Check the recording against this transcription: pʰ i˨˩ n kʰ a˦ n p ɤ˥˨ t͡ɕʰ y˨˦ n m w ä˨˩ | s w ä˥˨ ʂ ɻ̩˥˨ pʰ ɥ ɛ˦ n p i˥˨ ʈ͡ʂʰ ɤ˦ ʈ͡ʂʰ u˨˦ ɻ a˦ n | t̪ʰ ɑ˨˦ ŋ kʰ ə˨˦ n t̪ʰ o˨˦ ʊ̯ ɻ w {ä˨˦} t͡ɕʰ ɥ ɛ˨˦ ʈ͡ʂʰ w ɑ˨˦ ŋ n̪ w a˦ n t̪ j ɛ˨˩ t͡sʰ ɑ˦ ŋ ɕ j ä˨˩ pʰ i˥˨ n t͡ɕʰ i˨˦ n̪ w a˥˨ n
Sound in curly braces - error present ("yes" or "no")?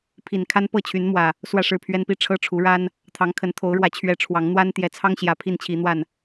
no